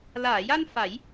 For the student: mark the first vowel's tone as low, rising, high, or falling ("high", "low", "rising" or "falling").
low